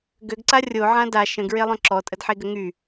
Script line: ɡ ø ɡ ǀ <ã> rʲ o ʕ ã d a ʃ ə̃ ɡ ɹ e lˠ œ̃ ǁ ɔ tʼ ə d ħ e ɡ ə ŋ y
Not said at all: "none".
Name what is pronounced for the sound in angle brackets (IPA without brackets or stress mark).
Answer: a